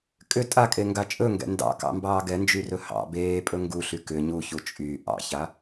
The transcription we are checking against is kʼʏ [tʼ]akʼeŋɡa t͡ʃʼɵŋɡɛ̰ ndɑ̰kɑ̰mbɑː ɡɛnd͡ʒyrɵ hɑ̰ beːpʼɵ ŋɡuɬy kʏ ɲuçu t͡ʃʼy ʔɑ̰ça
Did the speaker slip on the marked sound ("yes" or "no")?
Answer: no